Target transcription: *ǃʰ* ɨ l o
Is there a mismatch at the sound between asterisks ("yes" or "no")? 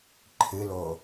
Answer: no